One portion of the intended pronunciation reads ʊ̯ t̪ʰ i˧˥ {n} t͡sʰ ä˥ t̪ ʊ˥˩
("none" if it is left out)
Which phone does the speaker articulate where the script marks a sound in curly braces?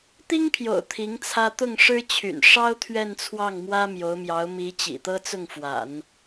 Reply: ŋ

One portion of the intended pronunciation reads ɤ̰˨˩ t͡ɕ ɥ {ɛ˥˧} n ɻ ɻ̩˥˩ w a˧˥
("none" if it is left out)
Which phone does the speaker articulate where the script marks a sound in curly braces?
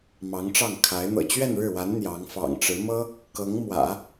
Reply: ɛ˥˧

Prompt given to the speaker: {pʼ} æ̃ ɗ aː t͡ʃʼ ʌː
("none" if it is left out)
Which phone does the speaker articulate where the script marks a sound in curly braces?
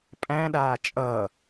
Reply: pʼ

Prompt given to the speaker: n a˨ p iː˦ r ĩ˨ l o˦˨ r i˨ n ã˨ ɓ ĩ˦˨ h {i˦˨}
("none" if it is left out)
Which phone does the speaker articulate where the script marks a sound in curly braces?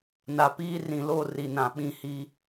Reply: i˦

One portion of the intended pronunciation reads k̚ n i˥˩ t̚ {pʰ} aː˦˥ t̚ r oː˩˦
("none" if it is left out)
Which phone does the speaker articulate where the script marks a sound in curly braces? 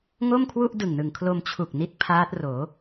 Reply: pʰ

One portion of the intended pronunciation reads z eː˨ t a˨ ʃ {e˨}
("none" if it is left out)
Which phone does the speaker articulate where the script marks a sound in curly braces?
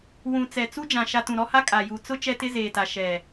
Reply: ɛ˨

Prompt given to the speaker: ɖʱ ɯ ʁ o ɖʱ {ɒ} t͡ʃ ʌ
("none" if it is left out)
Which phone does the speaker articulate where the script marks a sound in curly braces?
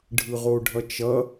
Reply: ʌ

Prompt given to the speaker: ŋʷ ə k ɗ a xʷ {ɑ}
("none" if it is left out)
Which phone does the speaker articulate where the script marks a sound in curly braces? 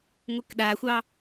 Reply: ɑ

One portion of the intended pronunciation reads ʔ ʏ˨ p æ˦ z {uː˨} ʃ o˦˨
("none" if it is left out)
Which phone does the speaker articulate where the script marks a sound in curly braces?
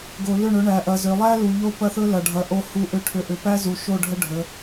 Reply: u˨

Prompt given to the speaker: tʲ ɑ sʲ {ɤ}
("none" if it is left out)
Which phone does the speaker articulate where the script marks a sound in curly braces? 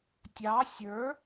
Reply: ə˞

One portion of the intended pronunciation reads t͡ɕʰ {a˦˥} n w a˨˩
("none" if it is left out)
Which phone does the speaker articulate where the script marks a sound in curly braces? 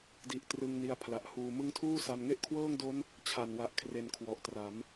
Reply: a˨˩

